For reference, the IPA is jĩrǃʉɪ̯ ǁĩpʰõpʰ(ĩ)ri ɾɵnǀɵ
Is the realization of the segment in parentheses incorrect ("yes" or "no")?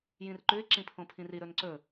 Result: no